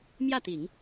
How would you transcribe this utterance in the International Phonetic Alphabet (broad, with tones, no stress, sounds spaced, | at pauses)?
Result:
m j ä˥˩ t̪ i˨˩˦ ŋ